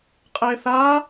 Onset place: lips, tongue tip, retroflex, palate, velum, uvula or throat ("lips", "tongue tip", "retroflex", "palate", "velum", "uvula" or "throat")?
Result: uvula